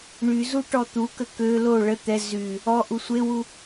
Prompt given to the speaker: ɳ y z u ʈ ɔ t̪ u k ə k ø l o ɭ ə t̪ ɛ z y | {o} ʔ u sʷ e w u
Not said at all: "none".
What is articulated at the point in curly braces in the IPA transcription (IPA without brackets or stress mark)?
ɔ